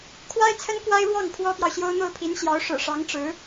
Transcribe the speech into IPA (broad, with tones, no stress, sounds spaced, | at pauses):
kʰ w a˥ ɪ̯ t͡sʰ ə˥ n k w a˥ ɪ̯ ɻ w ɑ˥˩ ŋ pʰ w ɔ˥ p j ɑ˨ ʊ̯ ɕ j o˥ ʊ̯ n̪ o˥˩ ʊ̯ pʰ i˧˥ n ɕ j ɑ˧˥ ʊ̯ ʂ ɻ̩˨˩ ʂ ɑ˧˥ ŋ ʈ͡ʂ ɻ̩˧˥